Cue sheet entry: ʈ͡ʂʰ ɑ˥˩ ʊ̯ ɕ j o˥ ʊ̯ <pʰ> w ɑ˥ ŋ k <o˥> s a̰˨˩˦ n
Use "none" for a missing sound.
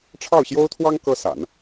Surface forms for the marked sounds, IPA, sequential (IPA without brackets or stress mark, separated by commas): t̪ʰ, ɤ˥